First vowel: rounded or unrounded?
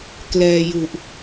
unrounded